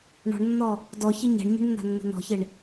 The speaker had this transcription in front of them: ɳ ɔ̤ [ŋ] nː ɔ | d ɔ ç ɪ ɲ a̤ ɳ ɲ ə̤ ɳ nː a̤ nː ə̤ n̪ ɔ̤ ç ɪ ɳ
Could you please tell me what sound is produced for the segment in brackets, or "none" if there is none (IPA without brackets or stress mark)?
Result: ɳ